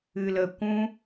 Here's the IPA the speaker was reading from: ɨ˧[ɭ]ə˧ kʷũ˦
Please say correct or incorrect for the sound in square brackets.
incorrect